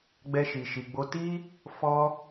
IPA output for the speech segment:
ɡ͡b ɛ˦ ʃ i˧ ʃ i˧ ɡ͡b o˦ t i˦ | f ɔ˦

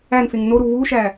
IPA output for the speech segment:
æ n f e ŋ n o ɾ u v u ʃ æ

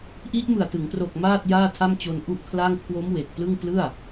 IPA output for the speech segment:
ʔ i˦˥ ʔ m ɯ˨˩ a̯ t ɯ˩˦ ŋ p r o˨˩ k̚ m aː˥˩ t̚ j aː˥˩ tʰ a˥˩ m t͡ɕ o˧ n ʔ u˥˩ ʔ kʰ l a˥˩ ŋ kʰ w o˦˥ m w e˨˩ k̚ p l ɯ˥˩ ŋ p l ɯ˥˩ a̯

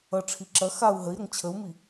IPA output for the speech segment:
ʌ ʈ͡ʂʰ i ǁ ɐ x a u̯ ɦ ə i̯ ɾ ə ŋ t͡ɕʰ ə u̯ m i

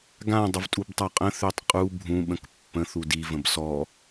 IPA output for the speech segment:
ɡ ã dˤ ə v tʼ u b tˤ a qʼ ə̃ θ ø tˤ qʼ u bʱ ũ ɓ ə̃ k pː ə̃ θ u d i v ə̃ b s ɔ

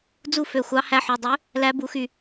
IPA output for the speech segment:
d͡z u˥˩ f ø˧˩ xʷ ɑ˧˥ h æ˧˥ ħ u˩˧˩ dˤ ø˧˥ | l æ˧˥ b u˩˧ x y˥˩

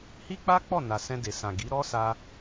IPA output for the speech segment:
h i˦ k͡p a˦ k͡p ɔ˦˨ n a˨ s ɛ̃˧ d e˨ s ã˨ ɡ i˨˦ ɾ ɔ˦ s a˧

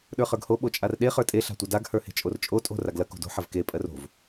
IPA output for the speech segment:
ɗ ə˞ χ ə˞ ɡ h o ɓ o t͡ʃʼ a r ɗ e χ ə˞ tʼ e ɬ a̤ tʷ ɐ d a ɡ h ə˞ h e̤ t͡ʃʼ o r t͡ʃʼ o tʼ o̤ r a ɡ l ɐ k o̤ d o̤ ħ ɐ v k e pʼ ɜ r o̤ v

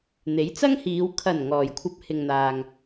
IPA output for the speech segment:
n̪ e˨˥ j t͡s ɐ˥ ŋ h iː˨˧ w kʰ ɐ˨˩ n ŋ ɔː˨˩ j kʷʰ ɐ˧ p̚ h ɪ˨ ŋ n̪ aː˨ ŋ

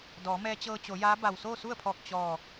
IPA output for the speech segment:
d ɔː˩˧ m ɛː˧ t͡ɕ ɤː˧ t͡ɕ o˩˧ j aː˧˥ b a˧˩ w s oː˥˨ s u˥˨ ə̯ pʰ ɔː˧˩ k̚ t͡ɕ ɔː˧˩

